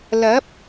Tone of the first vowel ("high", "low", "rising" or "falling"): rising